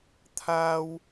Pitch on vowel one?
high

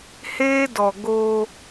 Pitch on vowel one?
high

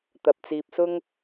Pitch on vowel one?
low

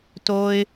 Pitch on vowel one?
high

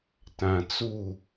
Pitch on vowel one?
low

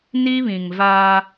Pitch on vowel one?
high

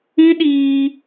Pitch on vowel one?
high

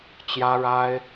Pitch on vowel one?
high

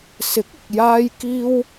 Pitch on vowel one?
rising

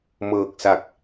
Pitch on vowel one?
low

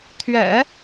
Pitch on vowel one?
low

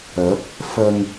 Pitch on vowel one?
rising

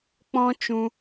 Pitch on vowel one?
high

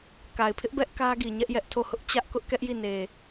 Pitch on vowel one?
low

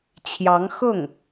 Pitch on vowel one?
rising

